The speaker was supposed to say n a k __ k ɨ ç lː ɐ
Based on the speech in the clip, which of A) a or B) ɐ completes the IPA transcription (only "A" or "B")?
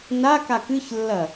A